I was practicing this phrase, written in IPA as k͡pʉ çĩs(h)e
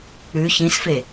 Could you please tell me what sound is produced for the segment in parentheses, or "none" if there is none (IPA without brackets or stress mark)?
f